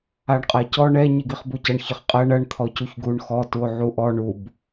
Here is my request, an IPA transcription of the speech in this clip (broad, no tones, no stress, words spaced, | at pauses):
aɳqʼacɔ ɳɛ ɲiɡiχbucɐɳ çəχqʼɜɳ ɐɳ t̪ʰɔcuçɡuɳ xɔ tuo̯ʕuʔɔ ɳub